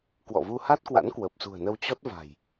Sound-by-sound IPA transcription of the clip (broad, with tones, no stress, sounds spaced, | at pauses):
k w ɔ̰˧˨ v u˧ h a˦˥ t̚ k w a̰˧˥ n k w əː˨˩ p̚ s ṳ˨˩ ə̯ n ə˧ w t͡ɕ ɔ˦˥ t̚ v a̤˨˩ j